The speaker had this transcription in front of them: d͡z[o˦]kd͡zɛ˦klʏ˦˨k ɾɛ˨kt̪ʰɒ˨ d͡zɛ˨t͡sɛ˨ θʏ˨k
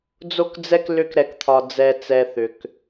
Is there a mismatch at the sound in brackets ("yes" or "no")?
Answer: no